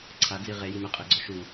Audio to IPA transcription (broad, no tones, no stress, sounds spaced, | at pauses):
ǀʰ a d͡z i ʁ e j i m e qʼ e ɡ͡ǀ ɔ ʃ u